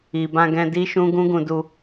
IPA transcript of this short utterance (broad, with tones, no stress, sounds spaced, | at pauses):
i˨ b ã˧ ɡ ɛ̃˧ d i˦ ʃ ũ˦ ɡ ũ˦ ɡ ũ˧ d u˧